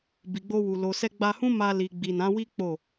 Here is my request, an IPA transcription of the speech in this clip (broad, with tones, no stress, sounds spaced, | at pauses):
b i˨ ɡ͡b o˧ w u˨ l o˨ s ɛ˧ ɡ͡b a˧ h ũ˦ m a˧ l i˨ ɡ͡b i˨ n ã˨˦ w i˦ k͡p o˦˨